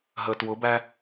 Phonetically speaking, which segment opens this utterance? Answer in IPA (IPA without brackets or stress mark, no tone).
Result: ɦ